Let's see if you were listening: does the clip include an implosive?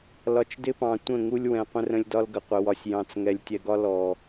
no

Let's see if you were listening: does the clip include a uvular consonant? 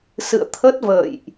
no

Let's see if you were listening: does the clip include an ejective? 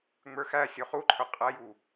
yes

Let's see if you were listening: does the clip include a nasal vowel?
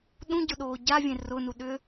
yes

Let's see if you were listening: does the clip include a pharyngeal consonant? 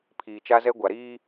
no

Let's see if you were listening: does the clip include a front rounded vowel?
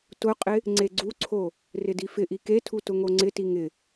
no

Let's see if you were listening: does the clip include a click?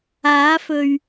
no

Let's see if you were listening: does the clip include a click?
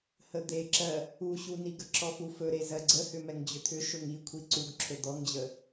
yes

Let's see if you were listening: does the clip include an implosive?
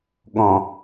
yes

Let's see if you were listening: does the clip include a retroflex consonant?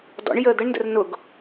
yes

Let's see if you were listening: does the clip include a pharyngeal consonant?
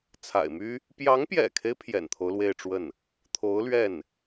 no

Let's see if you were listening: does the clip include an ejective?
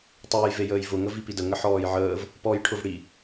no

